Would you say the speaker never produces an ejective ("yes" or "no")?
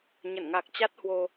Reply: yes